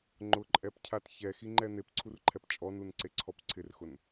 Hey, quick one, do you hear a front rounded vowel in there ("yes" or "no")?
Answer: no